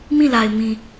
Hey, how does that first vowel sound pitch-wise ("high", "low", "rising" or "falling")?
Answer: falling